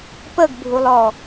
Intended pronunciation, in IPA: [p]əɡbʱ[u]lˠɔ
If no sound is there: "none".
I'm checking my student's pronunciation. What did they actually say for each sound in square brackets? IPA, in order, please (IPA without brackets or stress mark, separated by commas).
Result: p, u